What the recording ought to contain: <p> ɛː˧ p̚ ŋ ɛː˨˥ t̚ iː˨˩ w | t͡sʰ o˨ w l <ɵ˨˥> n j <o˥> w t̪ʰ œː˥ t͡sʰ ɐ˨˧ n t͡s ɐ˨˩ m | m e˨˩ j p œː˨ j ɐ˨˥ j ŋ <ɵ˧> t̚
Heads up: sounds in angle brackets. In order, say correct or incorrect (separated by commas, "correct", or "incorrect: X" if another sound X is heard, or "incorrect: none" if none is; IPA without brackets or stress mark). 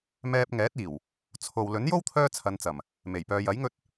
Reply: incorrect: m, correct, correct, correct